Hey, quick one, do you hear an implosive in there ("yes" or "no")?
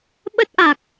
yes